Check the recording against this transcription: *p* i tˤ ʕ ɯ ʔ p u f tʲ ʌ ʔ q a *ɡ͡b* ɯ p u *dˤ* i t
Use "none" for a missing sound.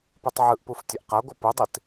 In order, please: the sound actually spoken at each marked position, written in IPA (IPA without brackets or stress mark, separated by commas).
p, ɡʷ, dˤ